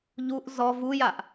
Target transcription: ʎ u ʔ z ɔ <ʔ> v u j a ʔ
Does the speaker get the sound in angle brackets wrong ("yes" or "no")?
yes